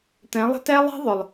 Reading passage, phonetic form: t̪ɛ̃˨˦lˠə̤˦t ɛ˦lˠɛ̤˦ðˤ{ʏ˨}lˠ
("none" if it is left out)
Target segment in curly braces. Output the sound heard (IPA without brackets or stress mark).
ʏ˨